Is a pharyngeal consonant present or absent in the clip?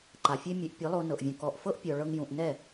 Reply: absent